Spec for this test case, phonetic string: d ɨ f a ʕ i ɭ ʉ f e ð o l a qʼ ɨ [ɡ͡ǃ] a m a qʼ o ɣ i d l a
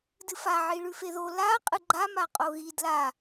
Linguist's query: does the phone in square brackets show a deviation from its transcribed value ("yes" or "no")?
no